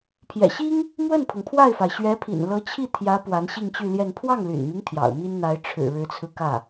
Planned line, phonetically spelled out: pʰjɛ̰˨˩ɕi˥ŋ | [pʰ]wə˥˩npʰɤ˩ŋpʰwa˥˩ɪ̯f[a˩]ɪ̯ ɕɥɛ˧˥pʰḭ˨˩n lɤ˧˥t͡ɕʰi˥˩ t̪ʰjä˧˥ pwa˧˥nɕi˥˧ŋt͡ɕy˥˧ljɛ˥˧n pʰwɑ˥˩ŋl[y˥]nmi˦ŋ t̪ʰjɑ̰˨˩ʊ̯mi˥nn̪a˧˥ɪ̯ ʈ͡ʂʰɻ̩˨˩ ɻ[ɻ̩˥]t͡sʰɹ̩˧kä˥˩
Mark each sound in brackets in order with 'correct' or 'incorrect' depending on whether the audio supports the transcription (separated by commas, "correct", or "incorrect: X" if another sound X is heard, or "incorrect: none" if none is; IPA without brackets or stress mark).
incorrect: m, correct, incorrect: y̰˨˩, incorrect: ɻ̩˧˥